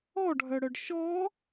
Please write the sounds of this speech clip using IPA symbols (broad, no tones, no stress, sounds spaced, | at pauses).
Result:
ɔ ɖʱ œ ɽ œ ɖ ʃ ɔ